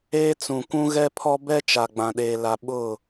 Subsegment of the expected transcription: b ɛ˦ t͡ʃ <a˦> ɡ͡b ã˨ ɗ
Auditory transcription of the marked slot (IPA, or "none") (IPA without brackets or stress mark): a˨